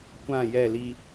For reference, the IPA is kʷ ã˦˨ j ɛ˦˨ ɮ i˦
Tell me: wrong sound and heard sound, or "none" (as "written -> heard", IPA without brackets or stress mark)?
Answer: ɮ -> l